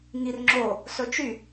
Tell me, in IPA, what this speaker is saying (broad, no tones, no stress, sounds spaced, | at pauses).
ŋ i r ŋ͡ǁ o | s ɵ t͡ʃ y